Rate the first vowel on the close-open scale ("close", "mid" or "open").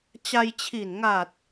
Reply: open